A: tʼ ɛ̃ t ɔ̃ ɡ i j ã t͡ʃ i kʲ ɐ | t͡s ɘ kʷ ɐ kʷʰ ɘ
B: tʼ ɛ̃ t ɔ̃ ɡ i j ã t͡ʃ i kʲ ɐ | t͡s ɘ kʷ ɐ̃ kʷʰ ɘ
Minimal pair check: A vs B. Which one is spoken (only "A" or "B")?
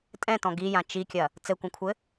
B